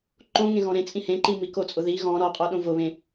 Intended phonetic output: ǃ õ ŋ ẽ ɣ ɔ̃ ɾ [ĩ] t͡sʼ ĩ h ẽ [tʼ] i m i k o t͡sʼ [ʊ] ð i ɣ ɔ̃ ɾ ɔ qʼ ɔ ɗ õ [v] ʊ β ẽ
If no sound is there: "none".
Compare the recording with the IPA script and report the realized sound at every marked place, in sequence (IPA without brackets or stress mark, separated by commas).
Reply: ẽ, ǃ, ʊ, v